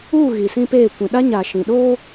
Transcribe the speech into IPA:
uː˦˨ ɣ i˨ s ĩ˦ p eː˦˨ kʷ ĩ˨ ɗ a˦ ɲ a˨ ʃ ĩ˨ ɗ oː˦

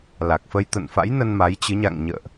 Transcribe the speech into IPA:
l a˨˩ k̚ f ə˧ j t̪ ə̰˧˨ n f a̰˧˥ j n ə˧ n m a˨˦ j t͡ɕ ɨ˨˦ ɲ a̰˧˨ ŋ ɲ ə̰ː˧˨ ʔ

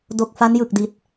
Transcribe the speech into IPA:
d o˨˩ k̚ f a˦˥ n j ɯ˨˩ k̚ d i˨˩ t̚

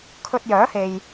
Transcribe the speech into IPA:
kʰ ɵ˧ t̚ j œː˨˥ h e˨ j

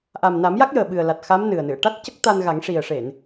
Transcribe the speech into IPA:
ʔ a˨˩ m n a˨˩˦ m j a˦˥ k̚ j əː˨˩ ɓ ɨ˨˩ ə̯ l a˨˩ t̚ x a˧˥ m n ɨ˨˩ ə̯ n ɨ˨˩˨ ə̯ ʈ a˦˥ t̚ c ə˦˥ k̚ t̪ a˧ n ɣ a˨˩˦ ŋ ʂ i˨˩ ə̯ ʂ e˨˩˨ n

